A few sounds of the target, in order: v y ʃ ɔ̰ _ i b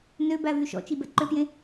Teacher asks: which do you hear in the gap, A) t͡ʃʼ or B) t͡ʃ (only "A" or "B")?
B